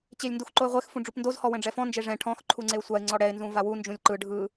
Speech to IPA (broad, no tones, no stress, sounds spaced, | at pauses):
t͡ɕ e lʲ n d u x ǃ o ɪ̯ ʁʷ e x f ũ ɖ͡ʐ u p n d o z h ɔ w ɛ̃ ɖ͡ʐ ɛ f ɔ̃ n d͡ʒ e ʐ ɛ̃ ʈʰ ɔ̃ x ǃʰ u ŋ͡ǀ e ʊ̯ sʷ a ɪ̯ ŋ͡ǀ ɔ ɽ ɛ ɪ̯ n z ũ v a w u n d͡ʒ ũ lʲ ǃ ɯ ɖʱ ɯ